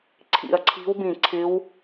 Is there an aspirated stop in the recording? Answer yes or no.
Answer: yes